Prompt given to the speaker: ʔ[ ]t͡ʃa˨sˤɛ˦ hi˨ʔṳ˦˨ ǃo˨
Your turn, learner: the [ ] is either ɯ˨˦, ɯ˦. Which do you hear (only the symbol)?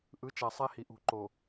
ɯ˨˦